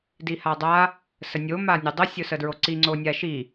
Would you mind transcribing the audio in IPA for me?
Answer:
d i h a dˤ a | s ə nʲ o m a nʲ ʊ dˤ ə sʲ ʊ s ə d ɹ o ǀ i ŋ͡ǀ o nʲ a ʃ i

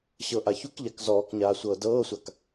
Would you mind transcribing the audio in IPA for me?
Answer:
ɕ ɤ ʔ a ç u k ʎ a k z ɔː k ɲ aː sʷ ɤː d ɤː sʷ a k

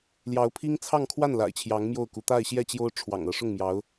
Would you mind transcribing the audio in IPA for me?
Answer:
l j ɑ˧˥ ʊ̯ pʰ i˥ ŋ t͡sʰ ɑ˥˧ ŋ kʰ w a˥˩ n l a̰˨˩ ɪ̯ t͡ɕʰ j ɑ˧˥ ŋ m j o˥˩ ʊ̯ k u˧˥ t̪ a˥˧ ɪ̯ ɕ j ɛ˥˩ t͡ɕ j o˥ ʊ̯ ʈ͡ʂʰ w ɑ̰˨˩ ŋ ɤ˧˥ ʂ ʊ˥˩ ŋ m j ɑ˧˥ ʊ̯

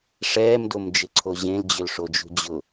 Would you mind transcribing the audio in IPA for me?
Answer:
ʂ ɛː m d o m d͡ʒ ɪ ǀʰ o ʑ ẽ l d͡ʑ ʏ l ʂ o d͡ʒ ṳ d͡ʑ ʊ

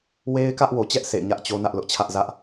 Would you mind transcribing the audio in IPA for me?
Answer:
w e˦ ɪ̯ k ä˦ ʔ w o˨ t͡ɕ ɛ˦ ʔ sʰ ḛ˦˨ ɪ̯ ɲ ä˦ ʔ t͡ɕ o˦ n ä˦ ʔ l ʊ˦ ʔ t͡ɕʰ ä˦ ʔ z ä˦ ʔ

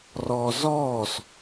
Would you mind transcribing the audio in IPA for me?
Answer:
r ɔː z ɔː s

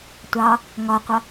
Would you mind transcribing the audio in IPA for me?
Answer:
tʷ ɑ | ŋ ɒ qʷ ʌ

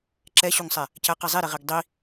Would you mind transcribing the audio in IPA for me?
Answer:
ǁ ɛ ɕ u ŋ sˤ ɛ | c æ q i zˤ i ɾ i ʁ i ɡ dˤ i

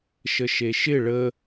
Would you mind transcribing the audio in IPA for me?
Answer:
ʃ ə ʃ e ʃ ɪ ɭ ə

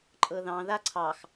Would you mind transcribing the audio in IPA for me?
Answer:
ǃʼ ɤ ð ɑ̃ ð a ǀʰ ɑ x

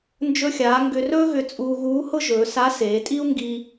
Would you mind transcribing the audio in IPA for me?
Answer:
n d͡ʒ ɵ˧ xʲ aː˩˧ ŋ ɡ ʏ˧ r ɵː˥ ɣ ʏ˧ t͡sʼ uː˧ ɣ uː˧˥ h ʊ˥ ʒ ɵː˩˧ s a˧˥ s eː˩˧ tʼ i˥ u̯ ŋ ɡ i˧

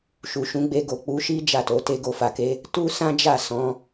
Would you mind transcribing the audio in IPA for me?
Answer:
ʃ u˨ ʃ ũ˨˦ ɡ͡b e˧ ɡ o˨ k͡p u˨˦ ʃ i˦ d͡ʒ a˦˨ t o˨˦ t e˧ ɡ o˧ f a˨ k e˨˦ | t u˦ s ã˦ d͡ʒ a˦˨ s ɔ̃˨˦

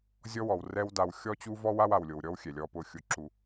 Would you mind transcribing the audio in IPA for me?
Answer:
zʲ ɔ˦ w ɔ˨ w r ɛ˦ w d a˨ w xʲ ɔ˦ t͡ɕ u˦ v ɔ˦ w a˦ w a˨ w lʲ o˨ w ɾʲ ɔ˦ w xʲ ɛ˨ lʲ ɔ˦ p ʊ˦ xʲ ʊ˦ ǁ u˦

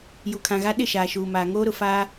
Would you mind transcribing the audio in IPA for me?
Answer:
j u˨ kʰ ã˨ ɣ a˦ ɗ ɪ˦˨ ʃ aː˨ ʃ uː˨ m aː˨ ŋ oː˦ ɾ ʊ˨ f aː˦

